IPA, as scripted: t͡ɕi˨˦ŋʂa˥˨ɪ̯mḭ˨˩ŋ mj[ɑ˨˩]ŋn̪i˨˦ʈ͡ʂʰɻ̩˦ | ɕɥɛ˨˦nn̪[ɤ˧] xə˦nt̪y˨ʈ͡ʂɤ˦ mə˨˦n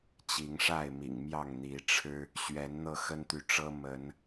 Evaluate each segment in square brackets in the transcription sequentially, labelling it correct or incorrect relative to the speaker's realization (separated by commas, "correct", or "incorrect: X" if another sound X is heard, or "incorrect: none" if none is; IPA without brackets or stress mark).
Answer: incorrect: ɑ˥˨, correct